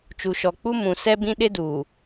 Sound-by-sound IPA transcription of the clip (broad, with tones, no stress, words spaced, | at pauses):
t͡ʃu˨ʃɔ˨k͡pu˦ mũ˨ sɛ˦bĩ˦ ɗɪ˦duː˨